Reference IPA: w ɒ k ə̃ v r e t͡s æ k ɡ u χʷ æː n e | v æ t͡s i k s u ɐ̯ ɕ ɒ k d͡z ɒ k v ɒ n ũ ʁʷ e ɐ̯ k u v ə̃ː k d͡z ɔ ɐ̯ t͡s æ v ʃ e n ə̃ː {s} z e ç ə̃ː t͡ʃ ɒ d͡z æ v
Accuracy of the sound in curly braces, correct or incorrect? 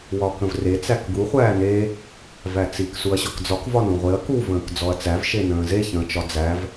incorrect